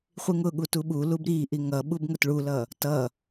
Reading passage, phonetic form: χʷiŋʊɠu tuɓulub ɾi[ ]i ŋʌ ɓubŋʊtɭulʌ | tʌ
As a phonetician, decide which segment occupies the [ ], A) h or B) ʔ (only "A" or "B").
B